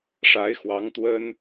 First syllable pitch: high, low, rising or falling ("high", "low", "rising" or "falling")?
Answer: rising